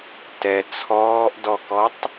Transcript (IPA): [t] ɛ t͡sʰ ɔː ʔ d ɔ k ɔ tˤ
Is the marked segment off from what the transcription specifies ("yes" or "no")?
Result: no